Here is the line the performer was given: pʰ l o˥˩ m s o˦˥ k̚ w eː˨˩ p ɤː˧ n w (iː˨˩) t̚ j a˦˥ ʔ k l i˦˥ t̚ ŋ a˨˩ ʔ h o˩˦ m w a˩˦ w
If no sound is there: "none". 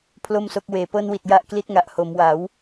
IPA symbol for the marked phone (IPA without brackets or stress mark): i˨˩